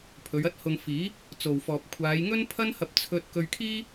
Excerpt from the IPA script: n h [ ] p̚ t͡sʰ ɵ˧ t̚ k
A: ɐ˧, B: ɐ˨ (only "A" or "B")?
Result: A